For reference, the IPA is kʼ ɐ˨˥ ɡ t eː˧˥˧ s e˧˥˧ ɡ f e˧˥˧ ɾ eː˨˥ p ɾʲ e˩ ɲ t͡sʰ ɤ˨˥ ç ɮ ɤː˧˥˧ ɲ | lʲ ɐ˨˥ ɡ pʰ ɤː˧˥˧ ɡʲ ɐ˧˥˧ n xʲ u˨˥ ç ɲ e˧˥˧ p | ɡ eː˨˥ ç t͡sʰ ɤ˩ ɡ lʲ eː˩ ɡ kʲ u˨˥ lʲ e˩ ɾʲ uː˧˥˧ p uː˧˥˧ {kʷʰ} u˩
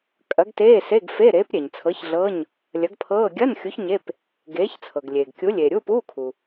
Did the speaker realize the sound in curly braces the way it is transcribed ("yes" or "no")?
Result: no